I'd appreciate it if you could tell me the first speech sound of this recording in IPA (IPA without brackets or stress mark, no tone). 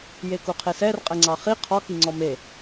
j